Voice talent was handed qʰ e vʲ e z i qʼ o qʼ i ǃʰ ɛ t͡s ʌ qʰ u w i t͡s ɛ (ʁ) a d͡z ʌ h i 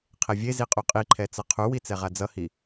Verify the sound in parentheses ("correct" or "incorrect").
correct